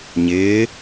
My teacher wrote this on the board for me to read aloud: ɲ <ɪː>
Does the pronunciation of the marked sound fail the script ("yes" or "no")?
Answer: no